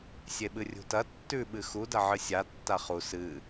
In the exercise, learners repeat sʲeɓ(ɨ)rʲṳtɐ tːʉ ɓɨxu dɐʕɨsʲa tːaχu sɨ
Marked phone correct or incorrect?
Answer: correct